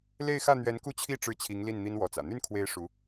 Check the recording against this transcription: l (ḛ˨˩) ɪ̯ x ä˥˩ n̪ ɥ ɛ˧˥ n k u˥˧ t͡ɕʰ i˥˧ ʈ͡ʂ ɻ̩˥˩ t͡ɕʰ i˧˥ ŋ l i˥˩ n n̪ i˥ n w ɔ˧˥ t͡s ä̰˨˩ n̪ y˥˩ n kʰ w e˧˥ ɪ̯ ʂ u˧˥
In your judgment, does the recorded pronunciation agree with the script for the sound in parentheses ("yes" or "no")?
no